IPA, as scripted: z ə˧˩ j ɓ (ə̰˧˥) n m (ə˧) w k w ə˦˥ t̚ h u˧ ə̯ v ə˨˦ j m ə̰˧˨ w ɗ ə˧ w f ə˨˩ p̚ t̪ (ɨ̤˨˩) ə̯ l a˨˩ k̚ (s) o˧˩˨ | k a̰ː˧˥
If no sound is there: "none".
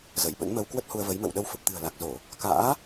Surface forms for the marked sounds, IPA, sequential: ə̰˧˥, ə˧, ɨ̤˨˩, z

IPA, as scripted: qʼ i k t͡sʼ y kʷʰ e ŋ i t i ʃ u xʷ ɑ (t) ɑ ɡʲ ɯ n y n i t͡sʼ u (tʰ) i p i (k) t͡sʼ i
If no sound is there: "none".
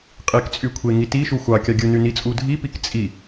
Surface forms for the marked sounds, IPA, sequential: kʲ, dʱ, k

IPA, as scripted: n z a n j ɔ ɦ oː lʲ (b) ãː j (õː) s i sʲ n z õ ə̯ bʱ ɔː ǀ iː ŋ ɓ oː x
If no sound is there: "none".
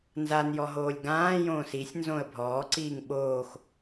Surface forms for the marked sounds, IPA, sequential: ɡ, õː

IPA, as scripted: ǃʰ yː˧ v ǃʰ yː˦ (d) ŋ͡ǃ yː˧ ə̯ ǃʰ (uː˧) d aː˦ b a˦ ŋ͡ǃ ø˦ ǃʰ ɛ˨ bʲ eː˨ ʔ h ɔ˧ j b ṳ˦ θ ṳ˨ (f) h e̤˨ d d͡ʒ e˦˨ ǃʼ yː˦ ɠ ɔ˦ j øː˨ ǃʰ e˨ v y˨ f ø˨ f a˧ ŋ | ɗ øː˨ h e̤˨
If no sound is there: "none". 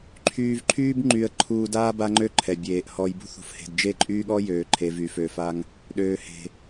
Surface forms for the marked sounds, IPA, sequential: b, uː˧, f

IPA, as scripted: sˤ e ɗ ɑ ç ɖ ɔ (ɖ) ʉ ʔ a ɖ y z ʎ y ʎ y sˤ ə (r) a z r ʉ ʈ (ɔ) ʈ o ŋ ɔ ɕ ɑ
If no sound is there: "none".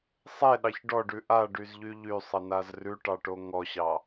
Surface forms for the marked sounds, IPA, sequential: ɖ, n, ɑ

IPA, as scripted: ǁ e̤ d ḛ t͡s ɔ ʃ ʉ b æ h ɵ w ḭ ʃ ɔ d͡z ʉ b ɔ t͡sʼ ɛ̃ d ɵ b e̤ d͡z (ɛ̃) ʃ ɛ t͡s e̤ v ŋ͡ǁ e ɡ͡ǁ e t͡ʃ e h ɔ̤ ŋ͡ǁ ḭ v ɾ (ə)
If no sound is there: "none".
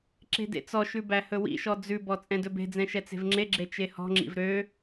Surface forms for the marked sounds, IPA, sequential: ɛ̃, ø

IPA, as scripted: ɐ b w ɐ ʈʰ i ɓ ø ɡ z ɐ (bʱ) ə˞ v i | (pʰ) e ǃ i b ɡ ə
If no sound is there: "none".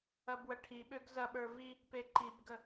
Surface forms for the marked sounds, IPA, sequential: ɓ, p

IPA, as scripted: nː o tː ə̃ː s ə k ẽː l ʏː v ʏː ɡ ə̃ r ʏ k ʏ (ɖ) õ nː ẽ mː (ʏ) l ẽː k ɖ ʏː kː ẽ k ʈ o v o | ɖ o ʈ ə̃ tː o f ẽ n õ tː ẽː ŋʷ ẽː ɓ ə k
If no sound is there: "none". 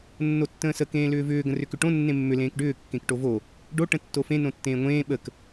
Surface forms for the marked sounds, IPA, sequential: ʈ, ʏ

